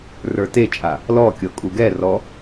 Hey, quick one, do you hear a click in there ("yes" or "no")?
no